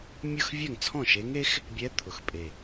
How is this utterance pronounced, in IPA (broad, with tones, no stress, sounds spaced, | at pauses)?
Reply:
mʲ ɤ˥˧ x vʲ ɛ˥˩ ŋ t͡sʰ ɔ̃˥˩ ʃ e˧˥ ŋ e˧˥ x | bʲ ɛ˧˥ t̪ʰ ʊ˨˩ x pʼ e˨˩